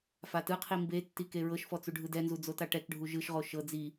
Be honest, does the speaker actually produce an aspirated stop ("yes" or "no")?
yes